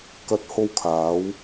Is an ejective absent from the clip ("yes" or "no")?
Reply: yes